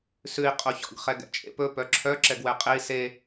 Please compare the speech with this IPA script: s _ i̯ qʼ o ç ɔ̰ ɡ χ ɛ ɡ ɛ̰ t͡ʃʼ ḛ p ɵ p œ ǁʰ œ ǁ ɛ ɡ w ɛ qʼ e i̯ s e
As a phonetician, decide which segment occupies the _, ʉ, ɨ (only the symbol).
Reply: ʉ